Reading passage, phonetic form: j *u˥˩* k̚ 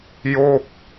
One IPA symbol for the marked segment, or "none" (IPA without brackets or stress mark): o˥˩